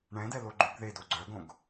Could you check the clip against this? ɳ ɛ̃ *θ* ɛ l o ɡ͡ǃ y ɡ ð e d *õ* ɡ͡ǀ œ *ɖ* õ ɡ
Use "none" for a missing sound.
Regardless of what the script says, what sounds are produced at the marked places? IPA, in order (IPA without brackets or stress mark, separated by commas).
d, o, ɡ